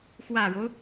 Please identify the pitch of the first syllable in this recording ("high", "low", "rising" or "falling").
low